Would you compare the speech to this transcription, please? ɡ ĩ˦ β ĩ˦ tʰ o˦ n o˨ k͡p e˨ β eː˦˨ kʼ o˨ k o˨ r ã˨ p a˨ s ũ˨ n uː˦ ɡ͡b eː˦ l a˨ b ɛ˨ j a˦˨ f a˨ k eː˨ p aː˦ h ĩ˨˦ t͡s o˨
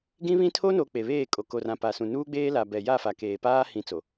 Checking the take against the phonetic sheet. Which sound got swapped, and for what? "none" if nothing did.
none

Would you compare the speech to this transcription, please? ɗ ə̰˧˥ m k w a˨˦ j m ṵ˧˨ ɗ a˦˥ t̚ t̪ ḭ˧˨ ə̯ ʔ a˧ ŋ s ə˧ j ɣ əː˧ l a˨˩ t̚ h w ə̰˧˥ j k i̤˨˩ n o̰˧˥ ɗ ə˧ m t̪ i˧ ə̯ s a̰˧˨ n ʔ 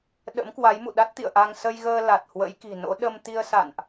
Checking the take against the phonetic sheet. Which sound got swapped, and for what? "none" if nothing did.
none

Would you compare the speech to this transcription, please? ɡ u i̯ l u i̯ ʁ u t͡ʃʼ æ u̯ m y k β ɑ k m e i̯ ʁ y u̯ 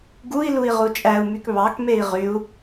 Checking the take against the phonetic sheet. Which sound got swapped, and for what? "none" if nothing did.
none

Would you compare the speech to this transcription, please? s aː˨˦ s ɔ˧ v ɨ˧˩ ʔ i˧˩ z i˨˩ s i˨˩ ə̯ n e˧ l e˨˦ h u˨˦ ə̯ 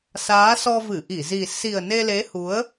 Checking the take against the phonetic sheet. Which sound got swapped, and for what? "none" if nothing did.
none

